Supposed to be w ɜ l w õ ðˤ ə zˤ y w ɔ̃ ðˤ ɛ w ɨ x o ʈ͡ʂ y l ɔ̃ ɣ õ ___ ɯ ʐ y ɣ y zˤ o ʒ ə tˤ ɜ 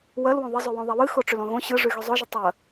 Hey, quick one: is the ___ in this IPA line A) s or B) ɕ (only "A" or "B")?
B